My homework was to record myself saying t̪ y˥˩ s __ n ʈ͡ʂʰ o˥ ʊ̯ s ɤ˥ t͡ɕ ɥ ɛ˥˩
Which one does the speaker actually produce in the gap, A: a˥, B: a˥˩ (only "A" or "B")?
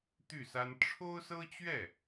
A